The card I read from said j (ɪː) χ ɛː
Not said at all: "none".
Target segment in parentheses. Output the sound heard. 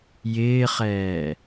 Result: ɪː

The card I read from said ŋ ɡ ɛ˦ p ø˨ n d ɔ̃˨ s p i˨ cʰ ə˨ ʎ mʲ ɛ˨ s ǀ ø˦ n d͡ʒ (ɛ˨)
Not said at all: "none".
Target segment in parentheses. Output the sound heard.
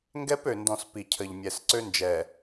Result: ɛ˨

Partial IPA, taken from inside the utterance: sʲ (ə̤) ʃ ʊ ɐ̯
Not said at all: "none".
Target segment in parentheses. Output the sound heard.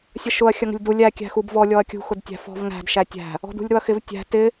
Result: ə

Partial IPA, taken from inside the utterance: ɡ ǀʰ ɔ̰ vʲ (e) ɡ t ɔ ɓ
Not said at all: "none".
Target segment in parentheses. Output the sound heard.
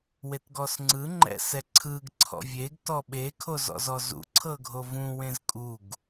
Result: e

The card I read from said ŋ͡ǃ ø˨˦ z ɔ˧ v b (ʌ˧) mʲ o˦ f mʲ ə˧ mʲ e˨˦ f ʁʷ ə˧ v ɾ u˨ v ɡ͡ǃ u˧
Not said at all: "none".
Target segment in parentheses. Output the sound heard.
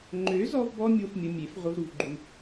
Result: ɔ˧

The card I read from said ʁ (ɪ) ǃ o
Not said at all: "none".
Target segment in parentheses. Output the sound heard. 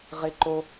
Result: ɪ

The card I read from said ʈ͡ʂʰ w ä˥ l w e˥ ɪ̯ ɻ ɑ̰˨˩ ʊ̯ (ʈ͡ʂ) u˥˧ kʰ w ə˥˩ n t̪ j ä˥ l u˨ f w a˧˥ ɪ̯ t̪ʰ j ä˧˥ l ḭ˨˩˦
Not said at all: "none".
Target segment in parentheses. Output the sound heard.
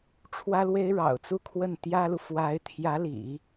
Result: t͡s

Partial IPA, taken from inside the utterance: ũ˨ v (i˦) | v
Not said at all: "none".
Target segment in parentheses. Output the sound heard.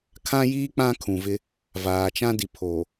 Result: ɪ˦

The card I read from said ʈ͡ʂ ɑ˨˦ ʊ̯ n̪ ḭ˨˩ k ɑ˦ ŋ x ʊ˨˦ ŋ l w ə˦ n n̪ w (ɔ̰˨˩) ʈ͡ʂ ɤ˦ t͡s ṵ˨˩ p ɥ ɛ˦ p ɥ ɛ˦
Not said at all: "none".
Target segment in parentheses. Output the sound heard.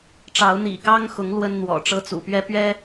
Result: ɔ̰˨˩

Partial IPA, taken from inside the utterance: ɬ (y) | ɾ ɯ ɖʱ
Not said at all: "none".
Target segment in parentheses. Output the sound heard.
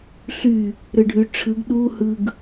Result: y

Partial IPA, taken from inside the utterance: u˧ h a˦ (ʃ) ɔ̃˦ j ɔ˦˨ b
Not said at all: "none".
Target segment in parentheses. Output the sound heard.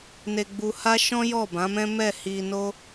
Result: ʃ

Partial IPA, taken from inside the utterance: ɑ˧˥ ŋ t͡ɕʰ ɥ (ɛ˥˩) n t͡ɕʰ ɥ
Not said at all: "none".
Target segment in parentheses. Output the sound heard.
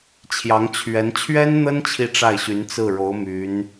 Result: ɛ˧˥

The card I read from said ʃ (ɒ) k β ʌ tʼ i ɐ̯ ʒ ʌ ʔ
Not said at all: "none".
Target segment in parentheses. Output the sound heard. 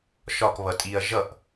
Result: ɒ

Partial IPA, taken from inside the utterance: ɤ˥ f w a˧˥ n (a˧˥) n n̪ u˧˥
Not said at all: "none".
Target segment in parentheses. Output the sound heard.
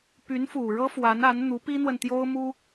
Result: a˧˥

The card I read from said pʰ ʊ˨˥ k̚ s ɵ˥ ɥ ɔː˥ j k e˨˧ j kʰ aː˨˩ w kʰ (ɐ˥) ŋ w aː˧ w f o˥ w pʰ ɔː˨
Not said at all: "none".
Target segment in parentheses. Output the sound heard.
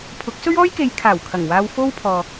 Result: ɐ˨˩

